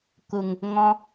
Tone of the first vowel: low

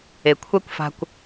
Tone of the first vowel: low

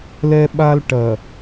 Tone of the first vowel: high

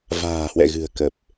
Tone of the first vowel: low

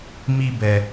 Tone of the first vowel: high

